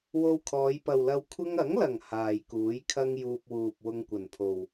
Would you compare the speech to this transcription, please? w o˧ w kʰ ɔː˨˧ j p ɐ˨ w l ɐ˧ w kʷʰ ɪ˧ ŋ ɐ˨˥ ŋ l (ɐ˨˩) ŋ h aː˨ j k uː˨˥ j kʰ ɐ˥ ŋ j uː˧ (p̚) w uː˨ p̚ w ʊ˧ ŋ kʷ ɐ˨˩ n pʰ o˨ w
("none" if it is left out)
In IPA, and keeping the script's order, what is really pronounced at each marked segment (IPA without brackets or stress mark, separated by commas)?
ɐ˨˩, p̚